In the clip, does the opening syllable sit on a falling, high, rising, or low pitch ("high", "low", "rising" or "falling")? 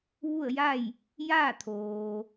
falling